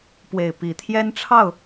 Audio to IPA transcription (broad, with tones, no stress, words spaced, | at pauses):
pwe˨˩ɪ̯ pi˨˦ t̪ʰjɛ˦nʈ͡ʂʰɑ˥˨ʊ̯